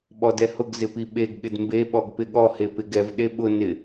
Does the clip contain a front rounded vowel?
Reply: no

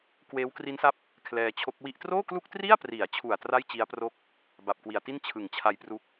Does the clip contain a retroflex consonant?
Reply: no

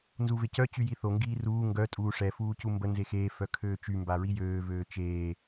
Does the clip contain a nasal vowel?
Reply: no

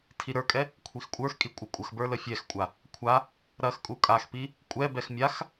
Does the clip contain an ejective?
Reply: yes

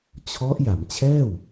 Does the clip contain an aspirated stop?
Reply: yes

